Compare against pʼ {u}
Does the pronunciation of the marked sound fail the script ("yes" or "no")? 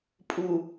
no